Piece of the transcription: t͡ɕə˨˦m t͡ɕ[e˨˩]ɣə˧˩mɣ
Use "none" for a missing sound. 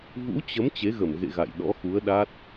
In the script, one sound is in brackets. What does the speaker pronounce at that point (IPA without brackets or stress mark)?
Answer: e˨˦